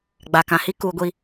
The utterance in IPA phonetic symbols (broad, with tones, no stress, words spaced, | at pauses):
ɡ͡ba˨kã˨hi˦ kuː˨ɡʷi˨